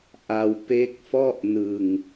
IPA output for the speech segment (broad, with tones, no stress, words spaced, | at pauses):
ʔa˧w pe˦˥k̚ fɔ˥˩ʔnɯ˧ŋ